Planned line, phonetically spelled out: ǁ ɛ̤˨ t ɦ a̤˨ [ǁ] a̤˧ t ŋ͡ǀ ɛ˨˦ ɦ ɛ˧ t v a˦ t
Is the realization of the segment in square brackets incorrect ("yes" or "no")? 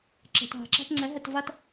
no